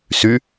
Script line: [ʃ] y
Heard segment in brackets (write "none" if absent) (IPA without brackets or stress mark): s